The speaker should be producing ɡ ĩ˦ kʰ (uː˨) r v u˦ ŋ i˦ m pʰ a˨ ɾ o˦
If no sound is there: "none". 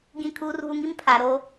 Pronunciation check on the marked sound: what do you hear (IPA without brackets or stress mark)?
uː˦